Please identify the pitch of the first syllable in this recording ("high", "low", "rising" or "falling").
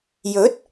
rising